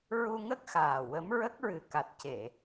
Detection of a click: absent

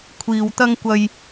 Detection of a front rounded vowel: absent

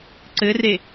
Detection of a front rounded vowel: absent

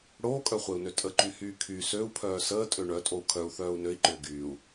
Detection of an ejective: present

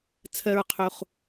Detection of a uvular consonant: present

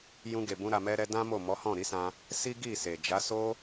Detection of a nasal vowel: present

